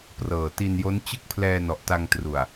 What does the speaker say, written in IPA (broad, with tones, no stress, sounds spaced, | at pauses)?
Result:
p r ɤː˨˩ t i˧ n j o˦˥ n t͡ɕ ɯ˥˩ k̚ pʰ l ɛː˧ n ɔ˨˩ ʔ t a˧ ŋ t r u˨˩ a̯